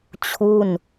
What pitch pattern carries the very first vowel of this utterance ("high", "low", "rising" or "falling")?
falling